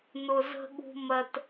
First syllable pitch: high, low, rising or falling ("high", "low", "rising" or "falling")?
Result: low